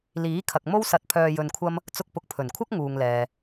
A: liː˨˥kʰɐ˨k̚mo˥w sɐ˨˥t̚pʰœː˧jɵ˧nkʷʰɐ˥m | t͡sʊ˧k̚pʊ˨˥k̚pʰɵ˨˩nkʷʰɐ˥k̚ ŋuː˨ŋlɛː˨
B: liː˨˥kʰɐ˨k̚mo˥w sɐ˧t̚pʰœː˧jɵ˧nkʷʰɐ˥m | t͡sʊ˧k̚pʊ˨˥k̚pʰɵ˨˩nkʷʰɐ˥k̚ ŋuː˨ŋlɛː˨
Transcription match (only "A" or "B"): B